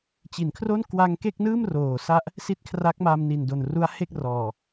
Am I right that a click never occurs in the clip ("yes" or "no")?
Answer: yes